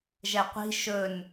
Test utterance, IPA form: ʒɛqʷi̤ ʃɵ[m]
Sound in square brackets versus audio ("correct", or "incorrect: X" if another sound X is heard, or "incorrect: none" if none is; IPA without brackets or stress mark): incorrect: n